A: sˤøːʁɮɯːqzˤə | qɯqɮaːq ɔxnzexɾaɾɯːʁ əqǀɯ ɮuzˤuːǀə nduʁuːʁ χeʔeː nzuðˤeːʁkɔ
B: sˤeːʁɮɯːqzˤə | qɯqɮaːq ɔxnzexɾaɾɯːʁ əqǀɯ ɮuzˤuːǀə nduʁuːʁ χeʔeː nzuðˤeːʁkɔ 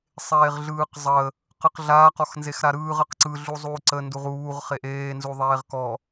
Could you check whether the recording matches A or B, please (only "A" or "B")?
B